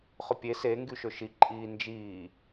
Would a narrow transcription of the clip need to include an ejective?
yes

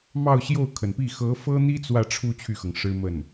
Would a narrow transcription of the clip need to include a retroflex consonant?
yes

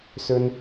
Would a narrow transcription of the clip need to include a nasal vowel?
no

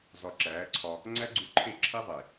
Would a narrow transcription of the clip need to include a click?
yes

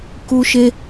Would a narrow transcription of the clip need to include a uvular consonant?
no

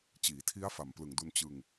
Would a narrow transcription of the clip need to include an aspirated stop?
yes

